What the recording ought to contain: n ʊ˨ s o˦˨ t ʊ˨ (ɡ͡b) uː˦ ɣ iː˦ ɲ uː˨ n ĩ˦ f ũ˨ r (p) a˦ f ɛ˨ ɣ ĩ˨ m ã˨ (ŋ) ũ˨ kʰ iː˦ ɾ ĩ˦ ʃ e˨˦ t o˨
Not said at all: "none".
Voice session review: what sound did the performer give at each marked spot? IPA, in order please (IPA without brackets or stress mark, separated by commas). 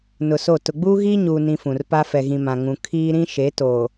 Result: ɡ͡b, p, ŋ